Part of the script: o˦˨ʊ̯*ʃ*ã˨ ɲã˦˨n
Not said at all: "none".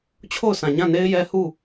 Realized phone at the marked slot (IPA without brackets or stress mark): s